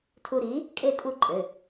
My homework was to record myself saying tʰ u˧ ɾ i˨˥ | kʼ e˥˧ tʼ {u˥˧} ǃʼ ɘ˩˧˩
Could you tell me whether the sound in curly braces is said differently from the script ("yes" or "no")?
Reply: no